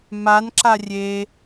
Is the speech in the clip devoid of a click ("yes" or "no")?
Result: no